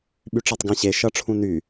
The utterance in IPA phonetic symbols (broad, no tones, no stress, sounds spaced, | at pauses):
ɓ y ʈ͡ʂ a tˤ ɡ ã ɕ e ʃ ʌ ʈ͡ʂʰ ũ n y